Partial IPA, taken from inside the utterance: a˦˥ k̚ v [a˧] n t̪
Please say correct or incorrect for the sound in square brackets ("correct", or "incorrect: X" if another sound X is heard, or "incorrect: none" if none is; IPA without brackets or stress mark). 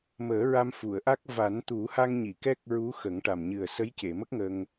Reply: incorrect: a˨˩˦